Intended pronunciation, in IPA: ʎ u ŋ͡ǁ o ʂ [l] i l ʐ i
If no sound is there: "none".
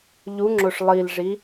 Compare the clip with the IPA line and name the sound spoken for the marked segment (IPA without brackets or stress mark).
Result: lˠ